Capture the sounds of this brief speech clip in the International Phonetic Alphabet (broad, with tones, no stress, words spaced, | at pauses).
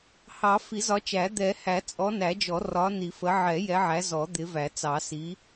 hɑ˨˩˦ fi˨˩˦zɒ˨˦t͡ʃæ˨˩˦ d̪ɛ˨˩˦ hæ˨˩˦t͡sʼɔ˨˦næ˨˩˦d͡ʒɔ˨˩˦ rɒ˨˦ni˨˩˦fə˨˦ ʕɛ˨˩˦ jɛ˨˦ʕæ˨˦ zɔ˨˩˦d̪ɪ˨˦væ˨˩˦t͡sɑ˨˩˦ si˨˦